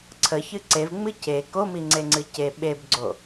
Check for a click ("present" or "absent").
present